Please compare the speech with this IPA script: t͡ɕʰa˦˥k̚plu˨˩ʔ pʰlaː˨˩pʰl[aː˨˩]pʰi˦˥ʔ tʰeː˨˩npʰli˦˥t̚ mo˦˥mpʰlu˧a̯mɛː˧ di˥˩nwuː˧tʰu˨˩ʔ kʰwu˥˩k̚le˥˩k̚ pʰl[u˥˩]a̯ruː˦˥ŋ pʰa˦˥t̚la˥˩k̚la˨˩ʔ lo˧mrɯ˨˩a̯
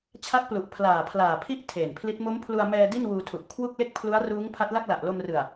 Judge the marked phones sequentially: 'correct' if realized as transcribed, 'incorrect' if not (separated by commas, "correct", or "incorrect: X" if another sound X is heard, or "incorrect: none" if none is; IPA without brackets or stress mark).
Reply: correct, incorrect: u˦˥